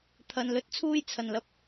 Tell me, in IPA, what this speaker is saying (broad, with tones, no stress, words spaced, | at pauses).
t̪ʰɐ˧n lɵ˧t̚t͡sʰuː˥jt͡sʰɐ˨nlɐ˧p̚